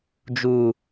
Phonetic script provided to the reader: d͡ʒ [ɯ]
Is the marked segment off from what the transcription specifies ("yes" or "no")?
yes